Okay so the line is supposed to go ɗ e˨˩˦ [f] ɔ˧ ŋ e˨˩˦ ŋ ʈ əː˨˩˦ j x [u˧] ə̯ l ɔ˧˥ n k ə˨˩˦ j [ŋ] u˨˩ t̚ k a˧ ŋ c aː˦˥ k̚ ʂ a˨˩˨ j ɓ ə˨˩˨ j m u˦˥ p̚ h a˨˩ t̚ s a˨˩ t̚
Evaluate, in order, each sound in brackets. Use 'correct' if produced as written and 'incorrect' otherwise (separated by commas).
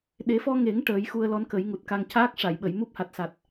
correct, correct, correct